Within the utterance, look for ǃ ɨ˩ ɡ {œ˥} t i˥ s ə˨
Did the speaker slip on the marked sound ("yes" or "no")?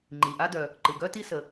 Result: no